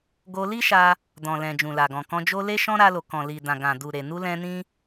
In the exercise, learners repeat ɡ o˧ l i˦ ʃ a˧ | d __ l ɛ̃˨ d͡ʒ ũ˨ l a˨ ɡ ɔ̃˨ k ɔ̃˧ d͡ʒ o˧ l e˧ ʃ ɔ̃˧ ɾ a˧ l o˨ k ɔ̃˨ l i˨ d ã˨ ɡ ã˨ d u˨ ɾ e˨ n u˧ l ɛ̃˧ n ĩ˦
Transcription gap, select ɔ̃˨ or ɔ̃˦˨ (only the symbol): ɔ̃˨